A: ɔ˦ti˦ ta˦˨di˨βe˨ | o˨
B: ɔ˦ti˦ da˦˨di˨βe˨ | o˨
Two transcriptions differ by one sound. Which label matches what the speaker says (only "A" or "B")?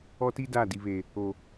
B